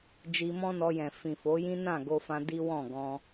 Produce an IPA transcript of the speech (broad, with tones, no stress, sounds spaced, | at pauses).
d͡ʒ i˧ m ɔ̃˦ n ɔ˧ j ɛ̃˨ f ĩ˨ f o˨˦ j ĩ˦ n ã˦˨ ɡ o˧ f ã˧ d i˦ w ɔ̃˦˨ ɡ ɔ̃˧